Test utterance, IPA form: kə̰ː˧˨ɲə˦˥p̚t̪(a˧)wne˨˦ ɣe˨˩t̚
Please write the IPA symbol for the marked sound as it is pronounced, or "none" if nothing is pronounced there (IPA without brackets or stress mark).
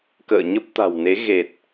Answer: a̤˨˩